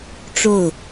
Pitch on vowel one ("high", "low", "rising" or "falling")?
falling